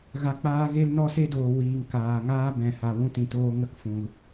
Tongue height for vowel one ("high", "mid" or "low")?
low